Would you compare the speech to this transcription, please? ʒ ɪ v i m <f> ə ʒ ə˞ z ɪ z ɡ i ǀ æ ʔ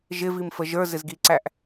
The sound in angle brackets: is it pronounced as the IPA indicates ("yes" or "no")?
yes